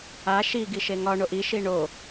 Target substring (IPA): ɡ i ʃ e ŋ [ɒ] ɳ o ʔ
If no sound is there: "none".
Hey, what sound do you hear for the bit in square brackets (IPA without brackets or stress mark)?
ɒ